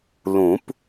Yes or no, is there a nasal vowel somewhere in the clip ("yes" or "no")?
yes